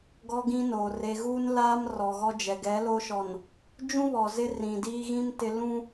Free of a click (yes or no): yes